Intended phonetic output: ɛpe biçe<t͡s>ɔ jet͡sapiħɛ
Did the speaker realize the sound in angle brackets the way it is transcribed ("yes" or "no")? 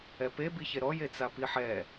no